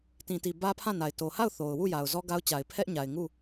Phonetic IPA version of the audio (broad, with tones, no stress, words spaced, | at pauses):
tĩ˨ti˨ bä˦pʰã˦˨na˨ɪ̯ to˨ha˦˨ʊ̯ θo˨ʊ̯ wu˦˨ja˨ʊ̯ zɔ˦ɡa˦ʊ̯t͡ɕa˨ɪ̯ pʰɛ˦ʔɲa˨ɪ̯ ŋu˦˨